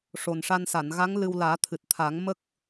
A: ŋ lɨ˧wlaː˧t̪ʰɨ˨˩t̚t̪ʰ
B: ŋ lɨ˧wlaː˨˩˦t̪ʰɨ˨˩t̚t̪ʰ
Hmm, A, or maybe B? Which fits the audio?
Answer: B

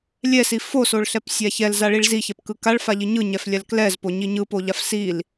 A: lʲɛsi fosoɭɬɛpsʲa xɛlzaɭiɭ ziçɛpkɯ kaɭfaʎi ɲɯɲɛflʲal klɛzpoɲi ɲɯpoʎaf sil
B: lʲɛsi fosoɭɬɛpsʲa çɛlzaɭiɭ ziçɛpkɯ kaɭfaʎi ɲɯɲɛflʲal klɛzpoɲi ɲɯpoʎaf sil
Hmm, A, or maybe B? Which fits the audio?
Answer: B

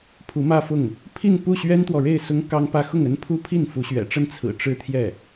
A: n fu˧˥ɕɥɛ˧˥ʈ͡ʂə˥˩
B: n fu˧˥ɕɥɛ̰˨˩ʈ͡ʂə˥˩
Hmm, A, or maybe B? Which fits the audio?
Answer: B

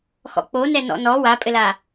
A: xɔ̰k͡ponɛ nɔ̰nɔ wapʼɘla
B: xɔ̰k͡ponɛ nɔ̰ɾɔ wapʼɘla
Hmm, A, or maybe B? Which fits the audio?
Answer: A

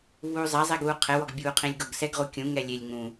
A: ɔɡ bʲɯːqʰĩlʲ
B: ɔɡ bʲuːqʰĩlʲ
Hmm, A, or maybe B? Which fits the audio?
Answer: B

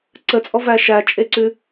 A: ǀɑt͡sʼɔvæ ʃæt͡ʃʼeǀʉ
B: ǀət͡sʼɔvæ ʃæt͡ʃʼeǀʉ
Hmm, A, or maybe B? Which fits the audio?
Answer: B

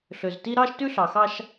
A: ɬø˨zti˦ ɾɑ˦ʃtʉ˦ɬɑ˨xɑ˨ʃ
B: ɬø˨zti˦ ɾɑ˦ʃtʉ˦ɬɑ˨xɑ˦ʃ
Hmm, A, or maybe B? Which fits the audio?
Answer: B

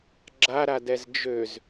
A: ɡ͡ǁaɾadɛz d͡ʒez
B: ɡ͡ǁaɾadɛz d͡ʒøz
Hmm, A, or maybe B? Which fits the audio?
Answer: B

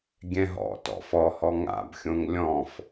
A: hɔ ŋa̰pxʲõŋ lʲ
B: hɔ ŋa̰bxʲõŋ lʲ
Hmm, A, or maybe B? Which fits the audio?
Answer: B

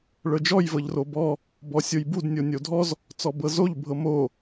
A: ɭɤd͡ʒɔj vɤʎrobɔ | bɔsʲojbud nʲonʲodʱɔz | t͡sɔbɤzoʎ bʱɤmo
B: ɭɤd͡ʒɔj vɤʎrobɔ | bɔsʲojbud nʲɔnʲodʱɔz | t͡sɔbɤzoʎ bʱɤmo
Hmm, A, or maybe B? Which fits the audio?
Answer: A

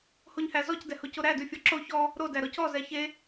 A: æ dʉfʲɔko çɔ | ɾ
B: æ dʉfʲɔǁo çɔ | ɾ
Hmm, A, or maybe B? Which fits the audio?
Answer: B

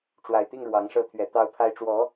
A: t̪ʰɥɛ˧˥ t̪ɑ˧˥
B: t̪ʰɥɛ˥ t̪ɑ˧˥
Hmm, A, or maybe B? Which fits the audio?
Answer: A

